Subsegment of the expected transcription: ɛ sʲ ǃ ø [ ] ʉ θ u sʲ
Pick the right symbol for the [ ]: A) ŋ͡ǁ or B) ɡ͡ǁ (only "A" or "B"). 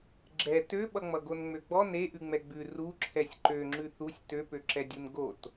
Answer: A